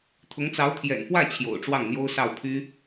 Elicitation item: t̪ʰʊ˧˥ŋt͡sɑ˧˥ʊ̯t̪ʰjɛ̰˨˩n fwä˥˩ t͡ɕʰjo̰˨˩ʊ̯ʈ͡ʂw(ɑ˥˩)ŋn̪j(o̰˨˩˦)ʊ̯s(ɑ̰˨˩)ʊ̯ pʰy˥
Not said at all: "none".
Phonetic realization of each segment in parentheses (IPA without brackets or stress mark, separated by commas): ɑ˥˩, o˥, ɑ˥˩